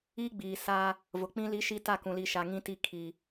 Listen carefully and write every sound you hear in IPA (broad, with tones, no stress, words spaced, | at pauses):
i˦ɡ͡biː˨ sa˦ | vʊ˨k͡pĩ˦ li˦ʃi˦ ta˦˨kũ˨li˨ ʃa˨ŋĩ˦ti˦˨ kʰi˨